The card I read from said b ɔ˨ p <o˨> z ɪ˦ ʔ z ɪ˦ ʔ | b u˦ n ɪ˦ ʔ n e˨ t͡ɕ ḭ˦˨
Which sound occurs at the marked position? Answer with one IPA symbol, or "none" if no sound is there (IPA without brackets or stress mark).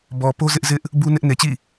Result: o˦